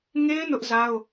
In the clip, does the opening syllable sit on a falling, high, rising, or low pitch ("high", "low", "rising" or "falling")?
high